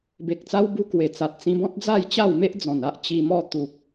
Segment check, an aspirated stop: absent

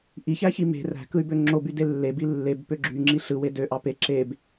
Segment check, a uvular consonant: absent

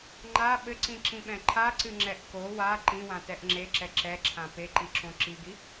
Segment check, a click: present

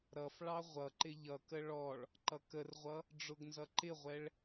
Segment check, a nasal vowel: absent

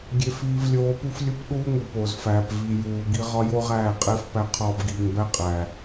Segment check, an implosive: present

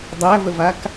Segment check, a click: absent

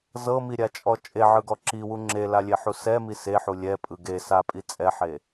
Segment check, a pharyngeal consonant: present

